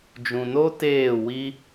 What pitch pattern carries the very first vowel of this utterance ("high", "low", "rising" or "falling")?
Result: low